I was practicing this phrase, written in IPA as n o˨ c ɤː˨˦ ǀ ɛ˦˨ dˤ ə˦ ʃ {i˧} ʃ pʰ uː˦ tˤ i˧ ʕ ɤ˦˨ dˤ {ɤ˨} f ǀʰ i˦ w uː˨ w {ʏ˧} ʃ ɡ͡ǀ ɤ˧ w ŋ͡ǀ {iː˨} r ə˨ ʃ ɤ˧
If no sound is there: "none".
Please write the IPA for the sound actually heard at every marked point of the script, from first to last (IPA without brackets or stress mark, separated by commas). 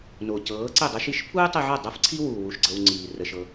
i˧, ɤ˦, u˧, iː˨